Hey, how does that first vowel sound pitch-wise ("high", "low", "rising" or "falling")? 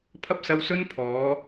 high